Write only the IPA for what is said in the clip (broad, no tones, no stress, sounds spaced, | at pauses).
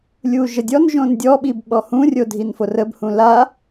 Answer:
lʲ uː ʒ ə dʲ ɔ n ʒ õ n dʲ ɔ ɓ i b ɓ ɔ h ũ rʲ o dʱ i n f o r ə b h ũ l a